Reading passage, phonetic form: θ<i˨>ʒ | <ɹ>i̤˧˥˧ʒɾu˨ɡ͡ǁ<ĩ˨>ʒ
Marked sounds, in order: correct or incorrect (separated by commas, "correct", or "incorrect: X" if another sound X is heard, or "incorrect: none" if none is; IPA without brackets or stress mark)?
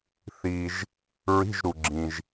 correct, correct, correct